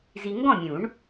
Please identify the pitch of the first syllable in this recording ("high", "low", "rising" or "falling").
low